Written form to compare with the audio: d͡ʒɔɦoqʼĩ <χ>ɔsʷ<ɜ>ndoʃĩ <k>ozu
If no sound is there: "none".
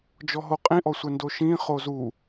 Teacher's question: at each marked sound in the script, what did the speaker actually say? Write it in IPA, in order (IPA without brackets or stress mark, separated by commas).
ʔ, ɛ, χ